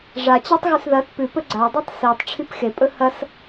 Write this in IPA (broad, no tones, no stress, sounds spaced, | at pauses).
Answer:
ʐ a t͡ɕ a tˤ ɣ ʉ s ð ɐ t p ʉ p ɵ ɡ͡ǀ a dˤ ʉ tˤ s i tˤ ʈ͡ʂʰ i p x e pʼ ɵ h ɐ s